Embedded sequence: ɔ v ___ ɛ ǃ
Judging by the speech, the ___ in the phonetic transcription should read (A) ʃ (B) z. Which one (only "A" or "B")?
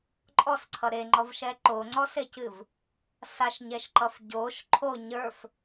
A